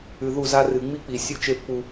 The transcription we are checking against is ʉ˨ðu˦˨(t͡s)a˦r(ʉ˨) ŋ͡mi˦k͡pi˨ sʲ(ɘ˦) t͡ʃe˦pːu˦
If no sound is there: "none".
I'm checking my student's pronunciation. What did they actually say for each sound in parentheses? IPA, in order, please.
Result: z, ɨ˨, ʉ˦

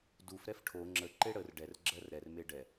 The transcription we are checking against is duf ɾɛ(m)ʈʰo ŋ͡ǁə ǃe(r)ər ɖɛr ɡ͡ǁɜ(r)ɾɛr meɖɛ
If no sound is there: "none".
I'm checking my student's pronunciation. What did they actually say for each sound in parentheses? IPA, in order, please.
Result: f, ɽ, r

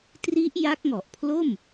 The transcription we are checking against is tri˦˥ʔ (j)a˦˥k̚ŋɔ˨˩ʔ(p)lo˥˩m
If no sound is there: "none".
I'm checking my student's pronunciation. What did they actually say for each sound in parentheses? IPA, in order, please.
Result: j, pʰ

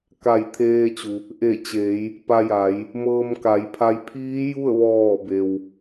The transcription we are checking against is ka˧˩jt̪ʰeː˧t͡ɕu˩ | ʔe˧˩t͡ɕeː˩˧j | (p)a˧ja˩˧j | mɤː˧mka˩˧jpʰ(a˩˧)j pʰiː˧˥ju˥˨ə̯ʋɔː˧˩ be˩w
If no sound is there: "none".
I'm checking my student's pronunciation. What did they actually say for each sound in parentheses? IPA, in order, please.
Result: p, a˧˥

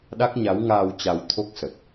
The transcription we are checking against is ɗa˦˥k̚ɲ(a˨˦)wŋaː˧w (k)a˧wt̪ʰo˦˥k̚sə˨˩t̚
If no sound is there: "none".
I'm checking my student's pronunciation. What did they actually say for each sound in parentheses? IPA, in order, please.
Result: a˨˦, t͡ɕ

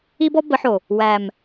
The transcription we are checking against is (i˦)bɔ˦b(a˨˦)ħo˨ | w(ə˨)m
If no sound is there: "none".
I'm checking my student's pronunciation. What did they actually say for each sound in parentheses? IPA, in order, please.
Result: i˦, ə˨˦, æ˨

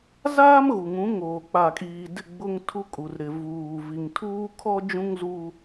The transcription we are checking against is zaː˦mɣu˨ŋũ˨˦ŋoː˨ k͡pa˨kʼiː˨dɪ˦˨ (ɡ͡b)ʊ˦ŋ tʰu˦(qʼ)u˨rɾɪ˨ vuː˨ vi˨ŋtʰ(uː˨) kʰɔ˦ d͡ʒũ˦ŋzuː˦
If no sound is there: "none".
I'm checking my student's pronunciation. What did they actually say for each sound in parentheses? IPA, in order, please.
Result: ɡ͡b, kʼ, uː˦

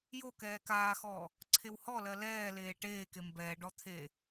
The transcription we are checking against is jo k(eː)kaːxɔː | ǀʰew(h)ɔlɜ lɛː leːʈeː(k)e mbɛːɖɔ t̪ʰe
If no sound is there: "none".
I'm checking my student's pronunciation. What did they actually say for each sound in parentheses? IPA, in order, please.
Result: ɛː, h, k

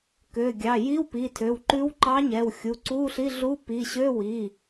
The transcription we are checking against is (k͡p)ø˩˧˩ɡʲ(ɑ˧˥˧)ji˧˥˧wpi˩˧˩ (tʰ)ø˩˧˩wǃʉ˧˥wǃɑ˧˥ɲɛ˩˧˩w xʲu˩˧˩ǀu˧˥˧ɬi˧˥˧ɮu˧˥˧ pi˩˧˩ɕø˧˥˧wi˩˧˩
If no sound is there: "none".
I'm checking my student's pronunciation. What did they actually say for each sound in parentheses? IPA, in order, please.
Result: k, ɑ˩˧˩, tʰ

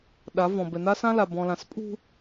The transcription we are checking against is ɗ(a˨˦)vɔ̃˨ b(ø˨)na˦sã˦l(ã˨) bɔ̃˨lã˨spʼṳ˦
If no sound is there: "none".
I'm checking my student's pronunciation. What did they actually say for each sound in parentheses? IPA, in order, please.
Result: a˨˦, ɛ˨, a˨

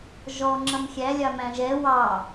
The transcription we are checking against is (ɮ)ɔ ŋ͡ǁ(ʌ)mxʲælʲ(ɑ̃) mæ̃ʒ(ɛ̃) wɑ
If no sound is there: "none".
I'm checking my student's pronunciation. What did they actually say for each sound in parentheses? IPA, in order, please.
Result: ʒ, ʌ, ɑ, ɛ

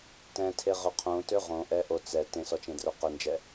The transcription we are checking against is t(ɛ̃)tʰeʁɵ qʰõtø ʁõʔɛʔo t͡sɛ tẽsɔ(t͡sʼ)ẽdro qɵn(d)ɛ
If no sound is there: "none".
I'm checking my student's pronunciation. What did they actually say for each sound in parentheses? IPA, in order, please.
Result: ɛ̃, t͡ʃ, d͡ʒ

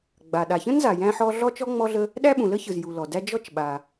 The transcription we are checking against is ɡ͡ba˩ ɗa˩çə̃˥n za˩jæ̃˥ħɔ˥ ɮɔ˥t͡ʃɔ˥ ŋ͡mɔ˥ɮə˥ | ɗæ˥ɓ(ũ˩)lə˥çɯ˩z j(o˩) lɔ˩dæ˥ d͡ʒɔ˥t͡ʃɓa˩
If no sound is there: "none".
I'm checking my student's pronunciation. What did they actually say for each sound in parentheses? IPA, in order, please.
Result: ũ˩, u˩

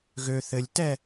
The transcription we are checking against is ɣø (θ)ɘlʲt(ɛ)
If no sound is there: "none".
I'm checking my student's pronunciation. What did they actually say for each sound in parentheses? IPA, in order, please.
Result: θ, ɛ

